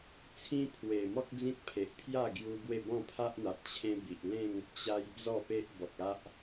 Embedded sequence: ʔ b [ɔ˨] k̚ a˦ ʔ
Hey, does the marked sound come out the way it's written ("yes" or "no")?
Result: yes